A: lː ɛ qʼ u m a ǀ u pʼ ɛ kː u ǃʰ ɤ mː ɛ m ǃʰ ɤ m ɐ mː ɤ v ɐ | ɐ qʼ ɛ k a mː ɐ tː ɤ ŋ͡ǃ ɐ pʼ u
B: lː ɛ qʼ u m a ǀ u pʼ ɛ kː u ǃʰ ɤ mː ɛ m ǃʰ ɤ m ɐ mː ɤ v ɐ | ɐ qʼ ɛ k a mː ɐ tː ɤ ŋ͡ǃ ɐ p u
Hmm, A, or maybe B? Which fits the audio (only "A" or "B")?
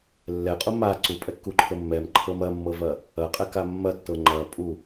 A